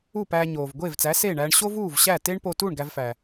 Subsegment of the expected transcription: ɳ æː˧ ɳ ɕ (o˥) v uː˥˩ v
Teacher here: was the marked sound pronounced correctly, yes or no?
yes